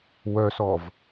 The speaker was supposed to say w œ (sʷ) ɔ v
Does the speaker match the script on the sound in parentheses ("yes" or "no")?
no